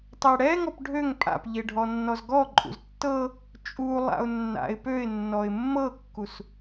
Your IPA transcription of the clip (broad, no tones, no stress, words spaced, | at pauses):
tˤɛɽɛ ŋɔpɖʱøŋ pʼa̰pʎe ɖʱɔnːɔzɡɔ ǃʼṵztːɤ | t͡ʃʼulˠa̰ʊ̯ nːa̰ɪ̯ pøɪ̯ nːɔɪ̯mːɤkːus